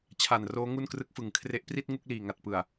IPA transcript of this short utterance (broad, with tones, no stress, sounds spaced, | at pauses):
t͡ɕʰ a˨˩ n r oː˦˥ ŋ u˥˩ n k r ɯ˦˥ k̚ f ɯ˩˦ ŋ kʰ r e˦˥ ʔ p r i˥˩ t̚ ŋ u˥˩ k̚ l iː˨˩ ŋ a˨˩ t̚ p ɯ˨˩ a̯